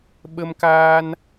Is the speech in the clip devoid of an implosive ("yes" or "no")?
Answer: no